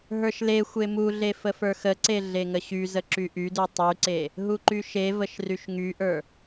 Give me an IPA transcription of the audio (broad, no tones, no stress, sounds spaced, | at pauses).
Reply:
ɦ ə˞ ʃ l e xʷ e m u ɮ e f ə f ə˞ x ə ǀ e ɮ e ŋ ə ɕ y z ə ǁ y ʔ y d u tˤ y ǀ e | ɦ u ǃ y ʃ e v ə ʃ r y ʃ ŋ y ʔ ə˞